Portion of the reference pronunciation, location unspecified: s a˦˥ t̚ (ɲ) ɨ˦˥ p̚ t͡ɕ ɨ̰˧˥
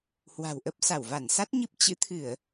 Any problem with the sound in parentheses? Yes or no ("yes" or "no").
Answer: no